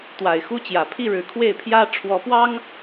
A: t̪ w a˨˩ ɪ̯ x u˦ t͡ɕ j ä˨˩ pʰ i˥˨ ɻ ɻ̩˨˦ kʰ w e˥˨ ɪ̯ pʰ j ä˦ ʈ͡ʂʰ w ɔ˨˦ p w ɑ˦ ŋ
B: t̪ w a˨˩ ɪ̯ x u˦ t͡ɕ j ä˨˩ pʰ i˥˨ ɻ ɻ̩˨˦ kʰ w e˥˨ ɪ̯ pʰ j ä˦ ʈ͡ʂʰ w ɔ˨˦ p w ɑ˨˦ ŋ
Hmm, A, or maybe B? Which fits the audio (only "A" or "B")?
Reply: A